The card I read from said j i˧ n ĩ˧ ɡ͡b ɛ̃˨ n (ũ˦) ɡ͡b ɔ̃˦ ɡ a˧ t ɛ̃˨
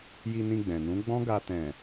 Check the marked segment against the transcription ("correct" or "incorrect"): incorrect